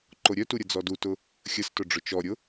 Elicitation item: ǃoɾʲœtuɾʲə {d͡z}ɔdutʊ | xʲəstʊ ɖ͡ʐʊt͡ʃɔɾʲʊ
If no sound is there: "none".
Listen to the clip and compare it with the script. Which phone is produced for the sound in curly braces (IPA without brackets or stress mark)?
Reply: d͡z